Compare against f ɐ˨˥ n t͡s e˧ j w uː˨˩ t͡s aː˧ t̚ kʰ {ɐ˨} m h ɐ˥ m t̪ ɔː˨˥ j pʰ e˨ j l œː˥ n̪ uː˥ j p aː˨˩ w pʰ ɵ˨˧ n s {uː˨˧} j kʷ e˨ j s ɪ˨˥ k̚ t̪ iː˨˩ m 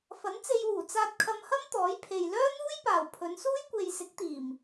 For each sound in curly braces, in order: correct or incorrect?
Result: incorrect, incorrect

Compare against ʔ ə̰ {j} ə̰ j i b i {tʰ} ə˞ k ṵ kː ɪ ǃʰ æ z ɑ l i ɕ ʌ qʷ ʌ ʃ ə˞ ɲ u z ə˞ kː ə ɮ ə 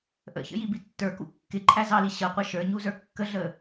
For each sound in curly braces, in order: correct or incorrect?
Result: incorrect, incorrect

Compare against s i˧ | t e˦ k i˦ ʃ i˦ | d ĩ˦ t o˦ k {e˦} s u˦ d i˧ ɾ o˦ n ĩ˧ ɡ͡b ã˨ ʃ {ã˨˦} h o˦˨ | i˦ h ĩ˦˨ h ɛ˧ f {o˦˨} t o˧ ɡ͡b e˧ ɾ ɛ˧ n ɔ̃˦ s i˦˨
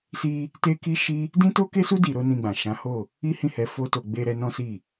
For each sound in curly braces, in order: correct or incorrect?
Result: correct, correct, incorrect

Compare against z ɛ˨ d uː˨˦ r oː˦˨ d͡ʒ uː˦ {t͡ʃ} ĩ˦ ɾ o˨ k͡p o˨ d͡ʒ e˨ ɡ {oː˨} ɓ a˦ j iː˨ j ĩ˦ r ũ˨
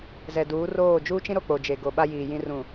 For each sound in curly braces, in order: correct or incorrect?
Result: correct, incorrect

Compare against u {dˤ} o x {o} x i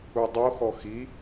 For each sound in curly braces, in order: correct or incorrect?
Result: correct, incorrect

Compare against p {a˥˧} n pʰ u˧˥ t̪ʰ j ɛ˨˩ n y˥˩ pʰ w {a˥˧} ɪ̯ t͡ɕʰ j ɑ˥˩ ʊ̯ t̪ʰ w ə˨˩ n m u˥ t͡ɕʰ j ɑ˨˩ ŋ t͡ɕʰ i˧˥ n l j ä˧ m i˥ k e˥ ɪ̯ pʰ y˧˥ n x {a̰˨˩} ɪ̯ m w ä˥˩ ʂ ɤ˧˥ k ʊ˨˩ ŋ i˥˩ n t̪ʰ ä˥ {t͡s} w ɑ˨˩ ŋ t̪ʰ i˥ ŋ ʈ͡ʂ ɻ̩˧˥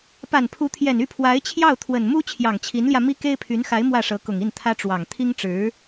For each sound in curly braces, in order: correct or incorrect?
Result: incorrect, incorrect, incorrect, incorrect

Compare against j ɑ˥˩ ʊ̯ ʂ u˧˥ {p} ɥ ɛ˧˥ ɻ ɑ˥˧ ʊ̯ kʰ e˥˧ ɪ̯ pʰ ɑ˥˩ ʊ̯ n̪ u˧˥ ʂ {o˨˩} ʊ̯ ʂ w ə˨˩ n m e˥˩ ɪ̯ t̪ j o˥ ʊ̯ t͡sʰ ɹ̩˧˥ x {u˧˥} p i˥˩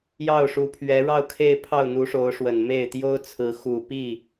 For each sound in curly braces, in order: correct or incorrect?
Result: incorrect, incorrect, incorrect

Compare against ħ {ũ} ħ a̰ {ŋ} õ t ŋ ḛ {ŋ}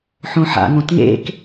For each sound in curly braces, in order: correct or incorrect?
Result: incorrect, correct, incorrect

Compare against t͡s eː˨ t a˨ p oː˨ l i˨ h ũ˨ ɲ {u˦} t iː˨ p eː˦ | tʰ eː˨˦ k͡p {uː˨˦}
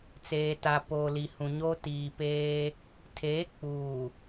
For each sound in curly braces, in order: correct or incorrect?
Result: incorrect, incorrect

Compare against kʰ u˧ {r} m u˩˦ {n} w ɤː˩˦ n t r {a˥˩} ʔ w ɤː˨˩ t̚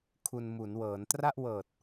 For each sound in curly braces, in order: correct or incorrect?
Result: incorrect, correct, correct

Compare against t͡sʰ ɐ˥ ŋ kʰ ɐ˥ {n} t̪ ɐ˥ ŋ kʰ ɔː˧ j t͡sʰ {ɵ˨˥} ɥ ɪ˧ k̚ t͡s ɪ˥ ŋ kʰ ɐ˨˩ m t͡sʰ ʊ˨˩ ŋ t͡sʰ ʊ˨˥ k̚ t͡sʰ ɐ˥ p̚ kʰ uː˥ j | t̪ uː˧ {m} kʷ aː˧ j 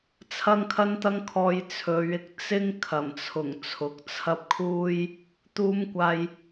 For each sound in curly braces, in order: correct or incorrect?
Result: correct, incorrect, correct

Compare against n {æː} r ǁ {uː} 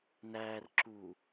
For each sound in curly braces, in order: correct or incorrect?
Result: correct, correct

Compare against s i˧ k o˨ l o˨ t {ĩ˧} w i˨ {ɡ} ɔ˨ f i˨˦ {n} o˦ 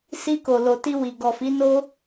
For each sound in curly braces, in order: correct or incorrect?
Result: incorrect, correct, correct

